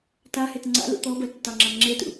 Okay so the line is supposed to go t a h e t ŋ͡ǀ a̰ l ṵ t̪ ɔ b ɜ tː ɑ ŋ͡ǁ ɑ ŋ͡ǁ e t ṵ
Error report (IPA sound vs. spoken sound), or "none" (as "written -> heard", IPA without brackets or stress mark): none